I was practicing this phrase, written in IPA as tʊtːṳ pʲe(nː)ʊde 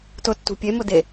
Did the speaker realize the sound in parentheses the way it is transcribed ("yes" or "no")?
no